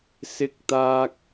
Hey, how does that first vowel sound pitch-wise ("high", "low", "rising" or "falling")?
high